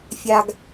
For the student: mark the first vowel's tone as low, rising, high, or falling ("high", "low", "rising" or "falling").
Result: high